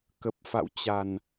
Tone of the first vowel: low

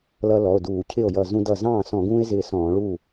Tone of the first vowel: high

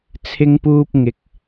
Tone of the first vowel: high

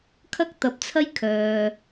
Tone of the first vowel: high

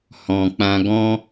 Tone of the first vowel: low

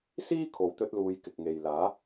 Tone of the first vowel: high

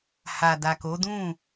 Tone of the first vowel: low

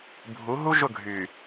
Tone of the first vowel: rising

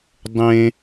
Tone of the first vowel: high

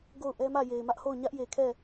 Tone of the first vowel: falling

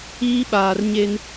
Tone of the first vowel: high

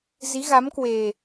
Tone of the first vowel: rising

